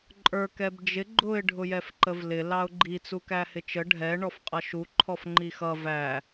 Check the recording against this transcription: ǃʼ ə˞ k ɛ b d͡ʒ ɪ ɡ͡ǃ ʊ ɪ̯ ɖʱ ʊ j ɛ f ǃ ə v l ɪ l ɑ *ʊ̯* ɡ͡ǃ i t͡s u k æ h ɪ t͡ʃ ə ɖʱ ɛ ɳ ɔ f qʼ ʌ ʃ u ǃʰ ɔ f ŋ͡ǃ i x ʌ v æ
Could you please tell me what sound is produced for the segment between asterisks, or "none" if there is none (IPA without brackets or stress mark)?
ʊ̯